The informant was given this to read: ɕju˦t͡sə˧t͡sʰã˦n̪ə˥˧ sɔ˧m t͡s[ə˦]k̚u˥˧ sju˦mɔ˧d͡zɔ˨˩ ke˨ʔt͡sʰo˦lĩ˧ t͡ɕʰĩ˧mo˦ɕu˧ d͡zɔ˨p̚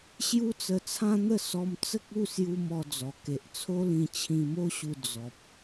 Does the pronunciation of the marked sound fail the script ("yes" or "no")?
no